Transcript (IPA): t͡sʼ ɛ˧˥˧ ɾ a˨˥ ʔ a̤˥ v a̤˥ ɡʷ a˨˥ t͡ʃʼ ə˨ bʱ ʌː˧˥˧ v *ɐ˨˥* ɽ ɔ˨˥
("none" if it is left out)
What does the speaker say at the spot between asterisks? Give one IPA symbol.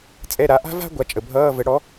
ə˨˥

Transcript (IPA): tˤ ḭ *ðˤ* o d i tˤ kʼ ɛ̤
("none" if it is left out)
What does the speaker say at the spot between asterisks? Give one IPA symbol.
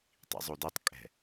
zˤ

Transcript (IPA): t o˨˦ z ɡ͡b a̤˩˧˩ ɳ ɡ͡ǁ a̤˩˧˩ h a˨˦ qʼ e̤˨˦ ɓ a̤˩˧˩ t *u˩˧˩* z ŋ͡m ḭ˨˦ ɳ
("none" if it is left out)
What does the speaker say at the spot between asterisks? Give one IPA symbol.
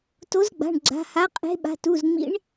u˩˧˩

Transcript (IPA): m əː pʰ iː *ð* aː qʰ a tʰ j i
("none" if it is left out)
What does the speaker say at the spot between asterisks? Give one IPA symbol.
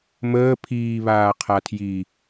β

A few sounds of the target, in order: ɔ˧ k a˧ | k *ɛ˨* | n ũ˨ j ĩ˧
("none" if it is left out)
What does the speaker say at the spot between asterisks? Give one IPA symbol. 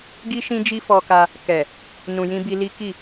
ɛ˨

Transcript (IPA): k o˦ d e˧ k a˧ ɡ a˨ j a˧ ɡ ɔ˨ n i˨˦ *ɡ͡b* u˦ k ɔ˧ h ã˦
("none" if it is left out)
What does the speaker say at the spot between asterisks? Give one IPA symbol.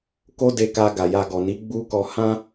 ɡ͡b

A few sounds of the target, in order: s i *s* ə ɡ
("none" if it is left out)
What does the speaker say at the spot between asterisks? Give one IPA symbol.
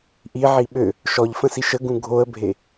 ʃ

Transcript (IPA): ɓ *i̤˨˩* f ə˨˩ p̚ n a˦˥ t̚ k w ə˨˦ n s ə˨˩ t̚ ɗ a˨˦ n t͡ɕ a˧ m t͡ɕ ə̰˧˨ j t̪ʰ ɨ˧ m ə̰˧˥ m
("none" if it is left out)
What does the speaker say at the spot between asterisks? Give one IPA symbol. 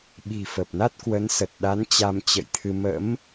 i̤˨˩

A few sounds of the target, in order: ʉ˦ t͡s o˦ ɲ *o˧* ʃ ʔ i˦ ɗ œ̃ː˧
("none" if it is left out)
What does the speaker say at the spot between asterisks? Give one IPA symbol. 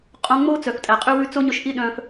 ɵ˧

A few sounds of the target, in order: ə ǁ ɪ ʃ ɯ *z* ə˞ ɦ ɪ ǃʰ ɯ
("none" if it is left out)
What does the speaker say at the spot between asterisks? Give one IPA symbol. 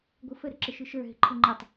ʃ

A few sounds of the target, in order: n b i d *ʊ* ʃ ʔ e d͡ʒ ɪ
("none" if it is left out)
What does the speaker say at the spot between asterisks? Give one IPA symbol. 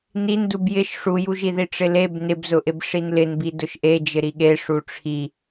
ʊ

